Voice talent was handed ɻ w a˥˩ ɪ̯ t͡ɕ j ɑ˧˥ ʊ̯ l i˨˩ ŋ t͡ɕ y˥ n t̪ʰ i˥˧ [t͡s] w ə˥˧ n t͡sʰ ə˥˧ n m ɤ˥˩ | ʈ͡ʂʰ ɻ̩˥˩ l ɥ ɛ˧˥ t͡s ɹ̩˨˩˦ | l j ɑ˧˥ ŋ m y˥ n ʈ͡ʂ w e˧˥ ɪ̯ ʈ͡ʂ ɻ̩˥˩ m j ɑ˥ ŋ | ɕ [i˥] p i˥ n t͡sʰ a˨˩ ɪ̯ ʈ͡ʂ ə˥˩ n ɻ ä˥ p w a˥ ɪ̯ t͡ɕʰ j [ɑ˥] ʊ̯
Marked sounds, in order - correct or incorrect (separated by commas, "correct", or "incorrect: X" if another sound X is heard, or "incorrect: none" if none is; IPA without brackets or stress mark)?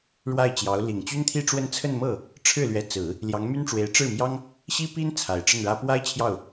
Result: incorrect: ʈ͡ʂ, correct, incorrect: ɑ˥˩